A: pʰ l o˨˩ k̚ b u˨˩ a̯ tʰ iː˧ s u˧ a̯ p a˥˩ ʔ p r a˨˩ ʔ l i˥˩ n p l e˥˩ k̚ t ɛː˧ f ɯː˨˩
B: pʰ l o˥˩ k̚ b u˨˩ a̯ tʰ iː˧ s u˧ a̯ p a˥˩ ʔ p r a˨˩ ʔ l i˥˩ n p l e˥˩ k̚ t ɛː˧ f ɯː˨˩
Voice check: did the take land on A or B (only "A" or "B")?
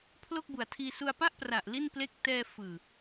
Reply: B